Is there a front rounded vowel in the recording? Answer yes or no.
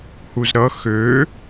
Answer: yes